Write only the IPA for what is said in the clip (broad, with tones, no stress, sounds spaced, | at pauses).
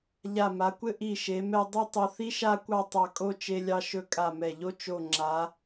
ʎ a˧˩ m a˩˧ kʷ ɘ˥ ʔ i˧˩ ʃ e˩˧ m ɛ˧ dˤ i˥˧ tˤ o˧ θ i˥ ʃ a˥˧ kʷ ɑ˥˧ tˤ ɑ˧˩ kʼ o˥˧ t͡ʃ e˧ lʲ ɑ˧ ʃ ɵ˧ kʼ a˧˩ m ɛ˧˩ ʎ o˥ t͡ʃ o˧˩ ŋ͡ǁ a˩˧